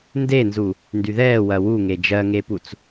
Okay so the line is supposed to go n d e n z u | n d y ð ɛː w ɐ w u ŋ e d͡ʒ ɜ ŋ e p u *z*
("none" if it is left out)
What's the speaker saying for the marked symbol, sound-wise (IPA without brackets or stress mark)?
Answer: t͡s